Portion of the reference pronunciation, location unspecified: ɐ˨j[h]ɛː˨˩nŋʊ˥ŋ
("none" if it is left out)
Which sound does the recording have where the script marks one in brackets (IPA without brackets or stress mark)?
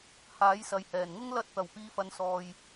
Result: h